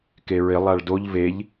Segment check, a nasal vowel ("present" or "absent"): absent